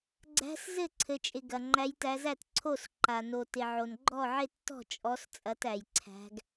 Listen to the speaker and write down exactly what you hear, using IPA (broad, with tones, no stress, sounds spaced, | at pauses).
ɡ͡ǀ æ̤˨˦ s z ɘ˥˩ ǀʰ ɘ˩ t͡ʃʼ ɪ˩ ɡ ɐ˩ ŋ͡ǃ æ˨˦ j t æ˨˦ z æ˥˩ t ǀʰ o˥˩ s ǃ a˩ n o˩ t ɪ˩ ʕ o˩ n ɡ͡ǃ ɔ˥˩ ʕ ɪ˥˩ tː ɔ̤˥˩ t͡ʃʼ ɔ˨˦ s t͡sʼ ɐ˨˦ t æ˩ j ǀʰ æ̤˨˦ ɡ